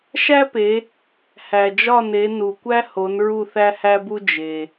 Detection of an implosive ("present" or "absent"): absent